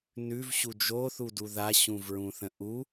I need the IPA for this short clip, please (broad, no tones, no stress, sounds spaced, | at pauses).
n ʉ v ɕ u d͡ʒ o θ u d u ð a ɕ ũ v ɹ ũ θ ə̃ ʔ u